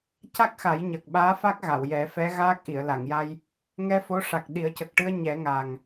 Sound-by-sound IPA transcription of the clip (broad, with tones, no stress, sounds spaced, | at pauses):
c a˦˥ k̚ x a˨˩˦ j ɲ əː˨˩ k̚ ɓ aː˧˥ f a˦˥ k̚ ɣ a˨˩˨ w j ɛ˨˩˦ f ɛ˧˥ ɣ aː˦˥ k̚ ʔ i˨˩˨ ə̯ l a˨˩˨ ŋ j a˧ j | ŋ ɛ˧ f o˧˥ ʂ a˨˩ k̚ ɗ i˨˩˦ ə̯ c ə˨˩ k̚ ʈ ɨ˧ ə̯ ɲ ɛ˨˩˦ ŋ a˨˩ ŋ